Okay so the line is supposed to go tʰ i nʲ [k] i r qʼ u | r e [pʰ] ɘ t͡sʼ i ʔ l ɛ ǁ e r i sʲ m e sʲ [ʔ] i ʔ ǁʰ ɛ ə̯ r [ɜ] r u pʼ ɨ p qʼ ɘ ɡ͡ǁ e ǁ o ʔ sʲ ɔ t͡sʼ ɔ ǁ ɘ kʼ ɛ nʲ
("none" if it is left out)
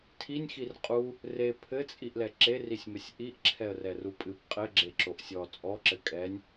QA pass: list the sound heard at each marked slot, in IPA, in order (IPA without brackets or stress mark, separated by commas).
x, pʰ, ʔ, ɛ